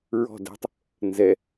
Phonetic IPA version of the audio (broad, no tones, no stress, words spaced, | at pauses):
ɹɔ̤ dɛ̤tˤ | nzɛ